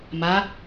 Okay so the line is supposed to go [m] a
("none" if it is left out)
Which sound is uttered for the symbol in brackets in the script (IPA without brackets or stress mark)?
m